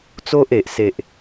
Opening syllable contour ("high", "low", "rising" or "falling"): high